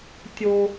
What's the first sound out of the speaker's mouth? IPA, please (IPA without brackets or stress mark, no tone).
tʲ